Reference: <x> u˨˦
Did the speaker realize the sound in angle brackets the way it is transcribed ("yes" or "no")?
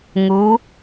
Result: no